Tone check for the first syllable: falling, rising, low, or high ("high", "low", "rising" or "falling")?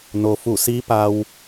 low